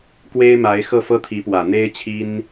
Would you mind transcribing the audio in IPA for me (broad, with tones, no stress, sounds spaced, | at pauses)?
k w e˥ ɪ̯ m a˧˥ ɪ̯ x ɤ˥˩ f ɤ˥ t̪ʰ i˧˥ p w ä˨˩ n̪ e˥ ɪ̯ t͡ɕʰ i˥ n